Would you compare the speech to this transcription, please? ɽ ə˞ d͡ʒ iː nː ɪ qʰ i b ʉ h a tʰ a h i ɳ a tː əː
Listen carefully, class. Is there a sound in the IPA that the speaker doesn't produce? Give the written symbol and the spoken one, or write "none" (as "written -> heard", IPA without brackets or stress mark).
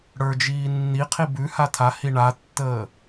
ɪ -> i